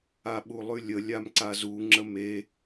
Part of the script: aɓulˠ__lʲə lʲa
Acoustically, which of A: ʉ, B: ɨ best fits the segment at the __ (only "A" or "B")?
A